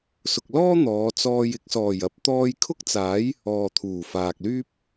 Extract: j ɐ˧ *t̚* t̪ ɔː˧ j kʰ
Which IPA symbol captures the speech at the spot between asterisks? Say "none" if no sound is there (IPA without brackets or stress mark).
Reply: p̚